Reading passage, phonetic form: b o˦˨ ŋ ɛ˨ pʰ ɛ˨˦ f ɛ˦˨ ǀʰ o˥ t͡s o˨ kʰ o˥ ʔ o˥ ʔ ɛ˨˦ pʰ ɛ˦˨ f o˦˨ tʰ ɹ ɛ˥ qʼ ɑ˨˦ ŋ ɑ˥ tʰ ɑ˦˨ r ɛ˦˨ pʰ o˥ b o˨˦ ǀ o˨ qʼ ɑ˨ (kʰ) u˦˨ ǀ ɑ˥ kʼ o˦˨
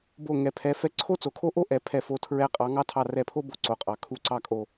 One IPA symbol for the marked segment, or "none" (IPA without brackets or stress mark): kʰ